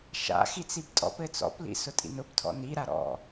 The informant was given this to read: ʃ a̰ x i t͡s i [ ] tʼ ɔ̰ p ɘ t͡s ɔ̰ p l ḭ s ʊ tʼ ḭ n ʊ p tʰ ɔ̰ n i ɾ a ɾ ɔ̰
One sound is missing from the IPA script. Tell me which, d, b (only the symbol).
b